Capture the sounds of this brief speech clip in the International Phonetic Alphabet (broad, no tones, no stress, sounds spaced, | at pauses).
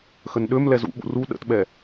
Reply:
x ə n ɗ ø m l ɛ z ṵ ɓ ṵ r u ɗ ə̰ t ɓ ɛ